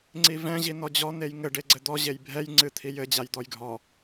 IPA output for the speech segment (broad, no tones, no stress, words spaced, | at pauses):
ŋ͡ǀivɛ̃ ʑinɔd͡ʑɔ n̪ejŋɘ ɖeɡ͡ǀɘd̪ɔ ʑejbʱɛj ŋ͡ǀɨt̪ʰijɘ d͡ʑajd̪ɔjɡʱɔ